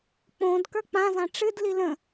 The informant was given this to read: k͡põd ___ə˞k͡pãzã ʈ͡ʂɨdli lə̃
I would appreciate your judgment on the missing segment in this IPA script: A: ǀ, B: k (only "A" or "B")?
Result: B